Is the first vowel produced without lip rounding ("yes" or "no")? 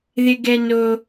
yes